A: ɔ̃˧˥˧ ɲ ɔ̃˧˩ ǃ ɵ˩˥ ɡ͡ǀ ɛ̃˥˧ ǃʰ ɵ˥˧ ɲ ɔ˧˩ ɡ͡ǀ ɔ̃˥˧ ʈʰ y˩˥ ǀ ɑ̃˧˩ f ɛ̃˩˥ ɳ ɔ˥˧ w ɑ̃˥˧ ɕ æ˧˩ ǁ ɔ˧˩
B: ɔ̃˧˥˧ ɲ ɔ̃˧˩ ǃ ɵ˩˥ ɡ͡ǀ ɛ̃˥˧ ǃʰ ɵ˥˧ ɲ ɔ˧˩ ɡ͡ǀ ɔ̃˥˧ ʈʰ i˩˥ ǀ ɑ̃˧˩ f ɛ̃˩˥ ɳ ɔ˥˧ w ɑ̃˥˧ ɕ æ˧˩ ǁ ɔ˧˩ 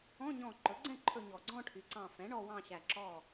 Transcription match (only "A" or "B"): A